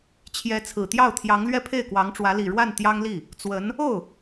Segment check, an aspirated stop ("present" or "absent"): present